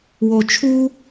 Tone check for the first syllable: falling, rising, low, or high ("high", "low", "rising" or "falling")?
low